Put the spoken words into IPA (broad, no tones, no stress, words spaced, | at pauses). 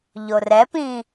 ʎorɛpĩ